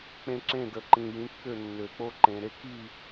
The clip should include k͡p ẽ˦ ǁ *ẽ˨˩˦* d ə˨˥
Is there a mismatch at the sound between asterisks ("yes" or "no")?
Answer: yes